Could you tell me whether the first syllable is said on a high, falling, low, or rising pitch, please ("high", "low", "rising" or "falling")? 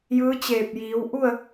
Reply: rising